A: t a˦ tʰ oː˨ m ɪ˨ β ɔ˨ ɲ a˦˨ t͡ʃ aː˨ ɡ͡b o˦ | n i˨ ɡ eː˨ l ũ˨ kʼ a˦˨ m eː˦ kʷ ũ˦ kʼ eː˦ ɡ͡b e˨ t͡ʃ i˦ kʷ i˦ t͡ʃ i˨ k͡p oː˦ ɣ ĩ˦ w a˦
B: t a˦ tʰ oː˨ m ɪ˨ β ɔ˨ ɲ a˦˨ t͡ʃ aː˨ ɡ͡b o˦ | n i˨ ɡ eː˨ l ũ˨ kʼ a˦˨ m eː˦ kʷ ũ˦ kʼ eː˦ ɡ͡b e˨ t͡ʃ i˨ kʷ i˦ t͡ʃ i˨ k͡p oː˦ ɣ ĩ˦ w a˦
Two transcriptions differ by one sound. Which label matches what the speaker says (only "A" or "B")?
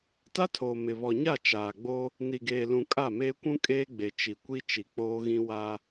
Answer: B